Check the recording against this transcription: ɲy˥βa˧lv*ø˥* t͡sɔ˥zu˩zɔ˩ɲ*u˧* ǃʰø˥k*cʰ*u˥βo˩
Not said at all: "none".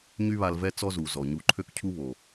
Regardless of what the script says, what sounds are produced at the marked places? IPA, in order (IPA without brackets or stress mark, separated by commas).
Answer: ɛ˥, u˧, cʰ